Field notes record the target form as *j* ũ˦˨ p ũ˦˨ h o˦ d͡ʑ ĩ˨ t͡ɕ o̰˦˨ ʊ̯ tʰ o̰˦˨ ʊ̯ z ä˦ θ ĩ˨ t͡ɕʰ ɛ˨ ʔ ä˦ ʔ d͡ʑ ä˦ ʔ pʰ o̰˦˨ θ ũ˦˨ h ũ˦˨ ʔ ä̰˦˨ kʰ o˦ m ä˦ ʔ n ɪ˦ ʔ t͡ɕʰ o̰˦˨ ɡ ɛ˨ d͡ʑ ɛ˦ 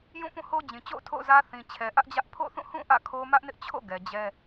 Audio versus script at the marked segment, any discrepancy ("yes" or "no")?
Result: no